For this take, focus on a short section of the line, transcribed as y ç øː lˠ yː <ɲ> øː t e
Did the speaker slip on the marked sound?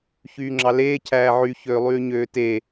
no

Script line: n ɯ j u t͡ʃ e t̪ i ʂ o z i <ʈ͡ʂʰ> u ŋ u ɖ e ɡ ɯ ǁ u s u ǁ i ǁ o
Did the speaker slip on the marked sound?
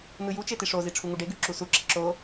no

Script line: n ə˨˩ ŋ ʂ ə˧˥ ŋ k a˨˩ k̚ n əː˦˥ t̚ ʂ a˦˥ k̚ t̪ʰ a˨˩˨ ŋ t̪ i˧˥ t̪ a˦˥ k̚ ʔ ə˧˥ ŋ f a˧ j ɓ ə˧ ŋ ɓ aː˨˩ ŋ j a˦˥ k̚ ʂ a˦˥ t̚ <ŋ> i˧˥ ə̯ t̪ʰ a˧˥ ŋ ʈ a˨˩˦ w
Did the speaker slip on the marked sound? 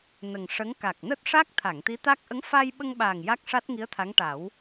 no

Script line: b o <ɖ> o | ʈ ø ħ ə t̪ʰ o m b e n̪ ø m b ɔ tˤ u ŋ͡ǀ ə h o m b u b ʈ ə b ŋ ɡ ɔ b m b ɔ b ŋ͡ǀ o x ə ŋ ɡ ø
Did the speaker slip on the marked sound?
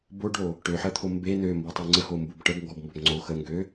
no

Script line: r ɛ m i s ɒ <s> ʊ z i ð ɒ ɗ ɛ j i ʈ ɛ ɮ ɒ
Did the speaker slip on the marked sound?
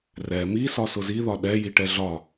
no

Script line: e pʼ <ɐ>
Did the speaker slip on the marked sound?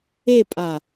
yes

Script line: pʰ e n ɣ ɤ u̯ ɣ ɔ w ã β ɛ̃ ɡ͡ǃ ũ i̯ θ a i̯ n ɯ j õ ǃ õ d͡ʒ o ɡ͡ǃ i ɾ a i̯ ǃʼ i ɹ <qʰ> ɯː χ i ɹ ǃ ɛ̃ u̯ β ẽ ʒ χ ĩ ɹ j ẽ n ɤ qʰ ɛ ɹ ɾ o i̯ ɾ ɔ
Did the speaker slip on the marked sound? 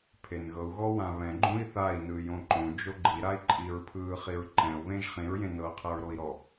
yes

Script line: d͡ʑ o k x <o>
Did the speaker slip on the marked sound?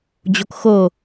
no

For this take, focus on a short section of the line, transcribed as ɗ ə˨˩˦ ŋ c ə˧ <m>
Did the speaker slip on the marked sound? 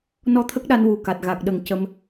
no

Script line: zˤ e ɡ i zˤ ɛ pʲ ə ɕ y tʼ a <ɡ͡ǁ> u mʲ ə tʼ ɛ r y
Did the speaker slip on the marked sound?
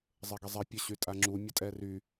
yes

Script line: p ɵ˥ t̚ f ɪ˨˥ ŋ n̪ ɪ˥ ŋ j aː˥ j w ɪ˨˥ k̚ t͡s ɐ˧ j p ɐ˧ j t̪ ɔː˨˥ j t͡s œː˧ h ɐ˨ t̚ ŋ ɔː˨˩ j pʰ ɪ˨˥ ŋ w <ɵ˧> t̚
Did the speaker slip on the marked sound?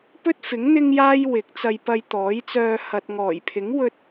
no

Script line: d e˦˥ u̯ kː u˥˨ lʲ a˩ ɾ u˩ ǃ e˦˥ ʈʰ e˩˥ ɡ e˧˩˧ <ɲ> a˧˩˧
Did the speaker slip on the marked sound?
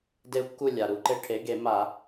yes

